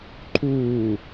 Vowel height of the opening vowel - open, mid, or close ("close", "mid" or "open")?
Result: close